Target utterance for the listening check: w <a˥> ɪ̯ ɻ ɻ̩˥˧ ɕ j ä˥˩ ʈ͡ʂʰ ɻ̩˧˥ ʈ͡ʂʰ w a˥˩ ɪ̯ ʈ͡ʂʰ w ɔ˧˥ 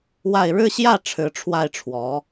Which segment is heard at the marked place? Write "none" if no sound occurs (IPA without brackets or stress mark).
a˥˧